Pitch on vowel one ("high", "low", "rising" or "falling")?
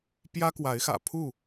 high